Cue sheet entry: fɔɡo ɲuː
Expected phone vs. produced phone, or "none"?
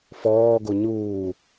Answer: ɔ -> ɔː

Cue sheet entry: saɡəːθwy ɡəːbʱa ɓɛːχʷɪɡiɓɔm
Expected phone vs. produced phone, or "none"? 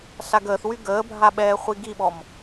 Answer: ɪ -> i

